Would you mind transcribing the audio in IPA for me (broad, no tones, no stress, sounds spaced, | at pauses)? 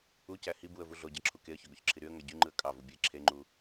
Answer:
u c æ h i b u ə̯ v u ɮ o ɟ ɑ ǁʰ u k e ə̯ ç ø ɡ o ç ǁʰ i ɾ y ə̯ ŋ æ ɟ y ŋ͡ǃ ɯ ə̯ kʼ ɑ v u bʲ e ǁʰ e ŋ͡ǃ u